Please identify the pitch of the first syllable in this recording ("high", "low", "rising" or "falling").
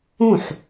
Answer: falling